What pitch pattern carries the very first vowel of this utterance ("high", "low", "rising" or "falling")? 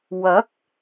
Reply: rising